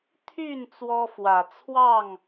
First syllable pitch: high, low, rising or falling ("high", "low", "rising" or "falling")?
falling